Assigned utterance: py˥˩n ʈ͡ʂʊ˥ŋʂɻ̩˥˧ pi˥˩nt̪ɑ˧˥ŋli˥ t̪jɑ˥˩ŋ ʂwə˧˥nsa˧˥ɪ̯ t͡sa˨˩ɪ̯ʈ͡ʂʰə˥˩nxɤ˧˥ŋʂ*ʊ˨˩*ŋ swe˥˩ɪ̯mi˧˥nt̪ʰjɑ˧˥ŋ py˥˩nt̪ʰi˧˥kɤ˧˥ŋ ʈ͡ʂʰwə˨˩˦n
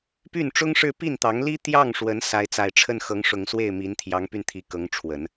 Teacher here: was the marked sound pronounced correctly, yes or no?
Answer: yes